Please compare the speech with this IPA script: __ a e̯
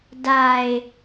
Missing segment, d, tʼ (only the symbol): d